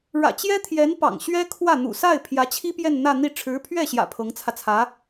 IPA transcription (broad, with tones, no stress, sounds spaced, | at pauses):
ɻ ä̰˨˩ t͡ɕ j ɛ˥ t̪ʰ j ɛ˧˥ n p ɑ̰˨˩ ŋ ɕ ɥ ɛ˥ kʰ w ä˥˩ n̪ ṵ˨˩ s a˥˩ ɪ̯ pʰ j ä˧˥ t͡ɕʰ i˥ p j ɛ˥˧ n n̪ ä˥˧ n̪ i˥˩ ʈ͡ʂʰ ɻ̩˧˥ pʰ ɥ ɛ˥˩ ɕ j ä̰˨˩ pʰ ɤ˧˥ ŋ t͡sʰ ä˧ t͡sʰ ä˧˥